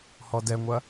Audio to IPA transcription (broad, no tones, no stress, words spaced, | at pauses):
hɔdɛŋʷɐ